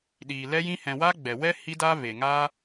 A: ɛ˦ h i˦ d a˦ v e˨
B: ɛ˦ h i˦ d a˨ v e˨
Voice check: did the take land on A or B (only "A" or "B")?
A